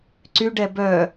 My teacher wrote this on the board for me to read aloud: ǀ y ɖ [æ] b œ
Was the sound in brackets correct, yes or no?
no